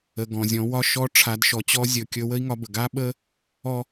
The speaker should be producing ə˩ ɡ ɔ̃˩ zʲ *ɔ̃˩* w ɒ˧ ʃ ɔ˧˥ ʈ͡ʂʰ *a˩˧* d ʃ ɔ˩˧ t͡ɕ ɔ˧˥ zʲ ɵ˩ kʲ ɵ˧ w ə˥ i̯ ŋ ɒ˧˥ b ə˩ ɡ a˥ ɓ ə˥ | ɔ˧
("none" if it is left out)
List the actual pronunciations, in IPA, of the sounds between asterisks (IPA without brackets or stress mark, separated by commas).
ɔ̃˩˧, a˩˧